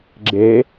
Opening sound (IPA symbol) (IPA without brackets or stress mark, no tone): ɡ͡ǁ